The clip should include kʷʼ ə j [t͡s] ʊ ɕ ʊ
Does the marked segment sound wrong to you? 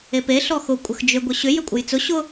no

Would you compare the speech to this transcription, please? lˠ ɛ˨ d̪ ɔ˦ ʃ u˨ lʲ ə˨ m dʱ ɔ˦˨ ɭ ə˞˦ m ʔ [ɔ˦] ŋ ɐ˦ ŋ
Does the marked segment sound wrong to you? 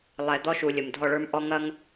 no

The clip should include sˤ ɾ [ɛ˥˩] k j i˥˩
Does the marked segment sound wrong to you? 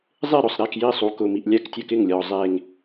no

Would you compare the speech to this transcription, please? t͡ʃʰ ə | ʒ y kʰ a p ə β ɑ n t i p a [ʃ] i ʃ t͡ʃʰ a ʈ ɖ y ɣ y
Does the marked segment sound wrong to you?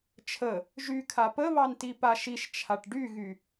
no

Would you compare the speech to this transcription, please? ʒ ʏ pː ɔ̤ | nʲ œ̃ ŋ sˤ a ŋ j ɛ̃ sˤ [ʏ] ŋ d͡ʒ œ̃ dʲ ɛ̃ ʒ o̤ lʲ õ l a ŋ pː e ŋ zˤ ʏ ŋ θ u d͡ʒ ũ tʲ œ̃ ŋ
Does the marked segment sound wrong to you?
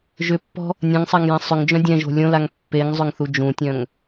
no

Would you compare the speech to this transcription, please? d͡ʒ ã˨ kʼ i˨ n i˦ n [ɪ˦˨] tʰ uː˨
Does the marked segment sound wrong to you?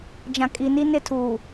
no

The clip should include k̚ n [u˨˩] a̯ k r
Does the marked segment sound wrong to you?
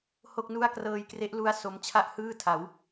yes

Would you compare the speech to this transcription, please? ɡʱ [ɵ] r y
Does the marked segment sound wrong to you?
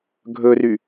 no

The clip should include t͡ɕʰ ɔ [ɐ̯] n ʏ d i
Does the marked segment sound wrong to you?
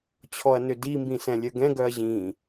no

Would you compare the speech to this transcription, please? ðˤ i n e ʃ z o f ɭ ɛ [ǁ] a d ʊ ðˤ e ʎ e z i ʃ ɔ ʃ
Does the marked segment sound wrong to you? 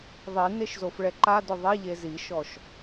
yes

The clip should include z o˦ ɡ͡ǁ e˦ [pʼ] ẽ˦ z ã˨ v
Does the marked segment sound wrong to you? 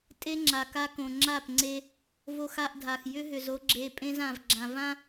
no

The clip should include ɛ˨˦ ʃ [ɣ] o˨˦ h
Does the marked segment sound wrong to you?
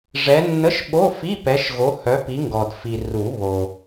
no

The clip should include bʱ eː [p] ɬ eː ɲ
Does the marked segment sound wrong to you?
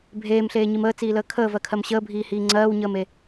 yes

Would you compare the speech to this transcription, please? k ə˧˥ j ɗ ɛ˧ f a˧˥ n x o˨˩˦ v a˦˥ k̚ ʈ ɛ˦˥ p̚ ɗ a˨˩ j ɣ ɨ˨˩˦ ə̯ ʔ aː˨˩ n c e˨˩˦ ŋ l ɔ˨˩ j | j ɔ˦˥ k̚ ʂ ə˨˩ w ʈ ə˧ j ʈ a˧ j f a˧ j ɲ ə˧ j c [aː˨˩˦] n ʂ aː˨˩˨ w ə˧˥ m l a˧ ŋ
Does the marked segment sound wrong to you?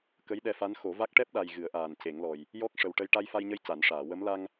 yes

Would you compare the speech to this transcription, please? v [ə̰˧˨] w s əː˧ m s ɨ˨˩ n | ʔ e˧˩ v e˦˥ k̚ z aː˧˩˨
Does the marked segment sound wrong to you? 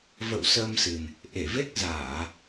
no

